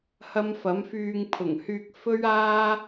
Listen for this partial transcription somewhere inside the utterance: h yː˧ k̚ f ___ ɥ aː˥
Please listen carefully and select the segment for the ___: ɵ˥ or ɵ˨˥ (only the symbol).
ɵ˥